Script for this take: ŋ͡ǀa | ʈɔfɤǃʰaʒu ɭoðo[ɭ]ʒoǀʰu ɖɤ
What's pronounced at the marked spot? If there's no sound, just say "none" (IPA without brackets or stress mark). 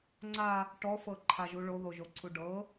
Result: none